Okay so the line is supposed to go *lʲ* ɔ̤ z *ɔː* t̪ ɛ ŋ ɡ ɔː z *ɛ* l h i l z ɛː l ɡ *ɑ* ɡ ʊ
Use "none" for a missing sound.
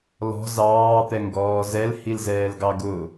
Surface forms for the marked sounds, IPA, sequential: l, ɑː, ɛ, ɑ

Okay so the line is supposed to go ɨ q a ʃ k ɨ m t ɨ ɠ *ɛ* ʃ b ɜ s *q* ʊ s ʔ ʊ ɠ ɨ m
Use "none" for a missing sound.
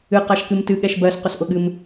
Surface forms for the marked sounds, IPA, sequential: ɛ, q

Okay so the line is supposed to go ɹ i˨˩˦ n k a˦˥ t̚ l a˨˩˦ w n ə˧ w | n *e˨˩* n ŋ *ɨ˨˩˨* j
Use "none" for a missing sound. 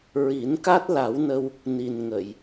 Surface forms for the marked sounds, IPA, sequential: i˨˩, ə˨˩˨

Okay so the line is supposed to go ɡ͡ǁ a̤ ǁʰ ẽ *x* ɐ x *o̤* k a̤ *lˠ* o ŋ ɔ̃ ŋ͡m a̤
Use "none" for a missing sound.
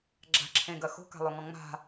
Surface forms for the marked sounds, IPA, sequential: ɡ, o̤, lˠ

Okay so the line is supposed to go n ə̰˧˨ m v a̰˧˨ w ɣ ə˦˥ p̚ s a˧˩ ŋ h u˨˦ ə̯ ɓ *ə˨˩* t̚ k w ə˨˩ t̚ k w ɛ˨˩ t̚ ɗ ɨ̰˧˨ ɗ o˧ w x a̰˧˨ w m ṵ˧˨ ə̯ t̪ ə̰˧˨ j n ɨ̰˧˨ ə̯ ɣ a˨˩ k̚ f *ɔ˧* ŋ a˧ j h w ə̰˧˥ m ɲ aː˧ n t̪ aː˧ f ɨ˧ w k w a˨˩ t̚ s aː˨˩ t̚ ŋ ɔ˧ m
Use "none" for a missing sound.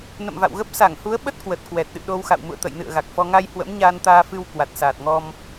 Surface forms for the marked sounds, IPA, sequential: ə˦˥, ɔ˧

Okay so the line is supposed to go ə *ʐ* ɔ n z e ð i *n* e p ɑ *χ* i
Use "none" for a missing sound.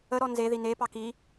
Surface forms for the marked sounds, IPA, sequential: ɾ, n, k

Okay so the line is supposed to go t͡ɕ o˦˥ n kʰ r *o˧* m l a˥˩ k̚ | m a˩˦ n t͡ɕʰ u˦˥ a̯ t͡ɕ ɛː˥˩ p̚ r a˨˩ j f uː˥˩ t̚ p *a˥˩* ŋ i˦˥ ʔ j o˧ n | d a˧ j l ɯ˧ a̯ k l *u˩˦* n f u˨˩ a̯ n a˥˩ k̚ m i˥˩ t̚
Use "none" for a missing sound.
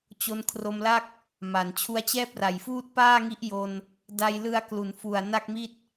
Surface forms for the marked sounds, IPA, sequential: o˧, aː˥˩, u˩˦

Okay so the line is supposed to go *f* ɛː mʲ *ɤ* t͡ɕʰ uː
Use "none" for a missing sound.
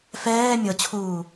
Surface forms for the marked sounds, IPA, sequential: f, ɤ

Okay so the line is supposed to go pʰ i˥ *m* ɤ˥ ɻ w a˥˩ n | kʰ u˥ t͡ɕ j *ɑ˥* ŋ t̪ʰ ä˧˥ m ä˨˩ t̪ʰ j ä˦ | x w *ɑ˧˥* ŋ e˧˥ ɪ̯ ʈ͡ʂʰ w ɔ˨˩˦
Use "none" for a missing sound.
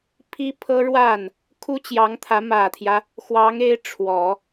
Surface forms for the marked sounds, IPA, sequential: pʰ, ɑ˧˥, ɑ˧˥

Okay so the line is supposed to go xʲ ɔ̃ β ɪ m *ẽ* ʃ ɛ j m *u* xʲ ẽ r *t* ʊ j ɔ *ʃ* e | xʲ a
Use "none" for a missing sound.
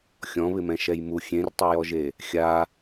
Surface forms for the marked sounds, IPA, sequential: ɛ̃, u, tˤ, ʒ

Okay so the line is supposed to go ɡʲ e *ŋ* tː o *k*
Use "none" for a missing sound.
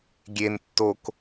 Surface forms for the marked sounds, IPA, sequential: n, k

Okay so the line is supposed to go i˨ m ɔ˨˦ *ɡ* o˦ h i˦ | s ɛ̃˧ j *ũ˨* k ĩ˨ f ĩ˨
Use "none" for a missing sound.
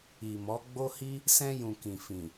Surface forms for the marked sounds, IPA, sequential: ɡ͡b, ũ˨

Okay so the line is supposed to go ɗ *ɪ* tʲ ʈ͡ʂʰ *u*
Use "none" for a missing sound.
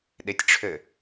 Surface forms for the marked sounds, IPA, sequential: ɪ, ø

